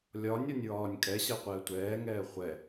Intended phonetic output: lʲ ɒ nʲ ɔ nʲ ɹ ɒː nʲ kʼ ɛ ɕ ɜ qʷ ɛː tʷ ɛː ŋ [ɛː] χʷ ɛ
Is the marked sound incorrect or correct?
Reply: correct